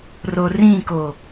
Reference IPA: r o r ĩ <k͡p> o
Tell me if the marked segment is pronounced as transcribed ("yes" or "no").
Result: no